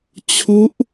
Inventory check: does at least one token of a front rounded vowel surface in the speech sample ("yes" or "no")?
no